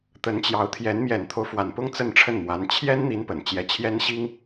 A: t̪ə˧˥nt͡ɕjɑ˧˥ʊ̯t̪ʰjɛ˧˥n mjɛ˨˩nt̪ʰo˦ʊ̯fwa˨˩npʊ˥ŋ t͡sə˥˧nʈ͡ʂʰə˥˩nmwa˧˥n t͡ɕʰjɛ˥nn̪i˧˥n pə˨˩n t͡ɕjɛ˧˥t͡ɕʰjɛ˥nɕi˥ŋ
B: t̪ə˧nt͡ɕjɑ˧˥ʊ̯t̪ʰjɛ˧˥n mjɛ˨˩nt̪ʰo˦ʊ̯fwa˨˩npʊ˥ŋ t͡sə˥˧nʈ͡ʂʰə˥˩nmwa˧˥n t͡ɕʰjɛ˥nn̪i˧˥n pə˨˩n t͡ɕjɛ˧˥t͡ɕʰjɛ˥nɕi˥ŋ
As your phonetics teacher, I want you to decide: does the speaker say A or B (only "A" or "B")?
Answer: A